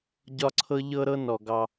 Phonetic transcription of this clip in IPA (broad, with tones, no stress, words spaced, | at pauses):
ɟɒ˦ǀʰɤ˦ ʎɤ˦ɾɤ˦ nɔ˩ɡɑ˨